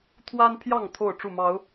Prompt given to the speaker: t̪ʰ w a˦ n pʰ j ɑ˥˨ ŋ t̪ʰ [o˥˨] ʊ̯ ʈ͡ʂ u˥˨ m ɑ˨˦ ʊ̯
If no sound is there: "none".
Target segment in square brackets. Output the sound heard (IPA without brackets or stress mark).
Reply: o˥˨